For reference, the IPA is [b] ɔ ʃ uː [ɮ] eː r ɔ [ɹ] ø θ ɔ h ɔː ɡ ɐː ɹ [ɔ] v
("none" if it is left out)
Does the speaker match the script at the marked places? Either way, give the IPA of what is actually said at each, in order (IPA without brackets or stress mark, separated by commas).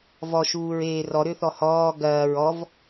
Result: v, ɹ, ɾ, ɔ